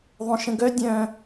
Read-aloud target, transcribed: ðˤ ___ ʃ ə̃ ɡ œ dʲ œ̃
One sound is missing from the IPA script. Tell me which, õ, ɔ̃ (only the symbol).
õ